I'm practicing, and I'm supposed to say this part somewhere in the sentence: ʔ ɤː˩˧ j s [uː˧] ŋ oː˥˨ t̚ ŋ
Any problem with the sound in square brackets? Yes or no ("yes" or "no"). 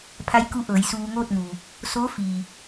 no